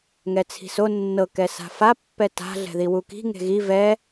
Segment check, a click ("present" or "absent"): absent